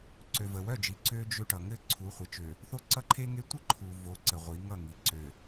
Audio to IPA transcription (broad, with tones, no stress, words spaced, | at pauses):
ǀø˨və˨wœ˦˨d͡ʒi˨ ǀø˦ d͡ʒø˦ʈʌ˨ ŋɘ˦ ǀʰu˨˦χʷə˨˦t͡ʃø˨ | θo˦ǀʌ˦ǃʰe˦ŋe˦ tʷə˦ ǃʰu˨vo˨˦ ǀə˨ʁʷi˨˦ŋʌ˦˨ŋi˨ ǀø˨